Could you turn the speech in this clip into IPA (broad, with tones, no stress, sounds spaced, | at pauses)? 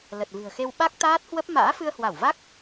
l ə˨˩ t̚ v ɨ̤˨˩ ə̯ x e˧ w ɓ a˦˥ k̚ t̪ aː˦˥ t̚ h w ə˦˥ p̚ m a̰ː˧˥ f ɨ˧ ə̯ h w a˧˩ w v a˦˥ k̚